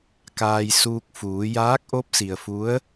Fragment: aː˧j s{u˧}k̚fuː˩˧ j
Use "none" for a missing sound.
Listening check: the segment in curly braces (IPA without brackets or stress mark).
uː˧